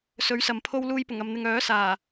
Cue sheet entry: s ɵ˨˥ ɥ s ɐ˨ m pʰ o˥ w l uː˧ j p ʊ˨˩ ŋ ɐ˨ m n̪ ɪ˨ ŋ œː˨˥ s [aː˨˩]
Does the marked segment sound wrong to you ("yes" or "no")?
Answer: no